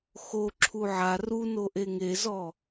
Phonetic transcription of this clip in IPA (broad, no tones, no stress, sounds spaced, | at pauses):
x o ǁʰ u ʕ a r u n o ʔ e ŋ e z ɔ